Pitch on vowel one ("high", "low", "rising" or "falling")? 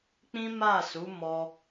high